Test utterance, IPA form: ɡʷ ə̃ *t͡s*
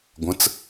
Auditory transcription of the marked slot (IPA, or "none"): t͡s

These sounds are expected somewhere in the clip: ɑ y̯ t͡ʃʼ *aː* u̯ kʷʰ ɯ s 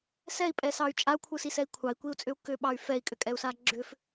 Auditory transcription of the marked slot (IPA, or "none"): a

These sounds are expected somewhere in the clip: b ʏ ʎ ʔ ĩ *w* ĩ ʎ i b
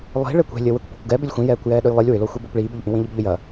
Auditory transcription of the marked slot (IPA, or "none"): w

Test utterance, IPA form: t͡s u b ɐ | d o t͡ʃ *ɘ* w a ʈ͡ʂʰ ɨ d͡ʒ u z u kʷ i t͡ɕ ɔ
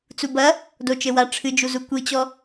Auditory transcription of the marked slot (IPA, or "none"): ɘ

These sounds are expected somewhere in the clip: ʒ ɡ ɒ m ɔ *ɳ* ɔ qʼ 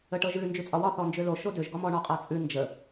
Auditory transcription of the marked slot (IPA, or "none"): ɳ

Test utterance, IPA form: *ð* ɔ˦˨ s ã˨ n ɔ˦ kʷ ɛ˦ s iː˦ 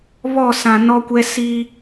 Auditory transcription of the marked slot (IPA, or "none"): β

